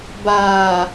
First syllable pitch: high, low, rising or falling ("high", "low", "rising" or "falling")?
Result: low